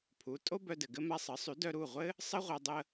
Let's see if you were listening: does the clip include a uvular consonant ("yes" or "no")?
yes